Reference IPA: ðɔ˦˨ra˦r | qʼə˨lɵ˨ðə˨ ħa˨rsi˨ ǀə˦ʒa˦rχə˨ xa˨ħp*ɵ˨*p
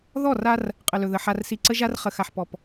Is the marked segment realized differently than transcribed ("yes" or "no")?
yes